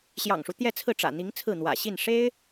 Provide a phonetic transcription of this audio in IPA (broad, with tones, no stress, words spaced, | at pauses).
ɕjɑ̰˨˩ŋʂu˦ t̪jɛ˥˧t͡sʰɹ̩˥˩ʈ͡ʂä̰˨˩n̪i˧˥ŋ t͡sʰɹ̩˥˩n̪wä̰˨˩ ɕi˥˩n ʂe˥ɪ̯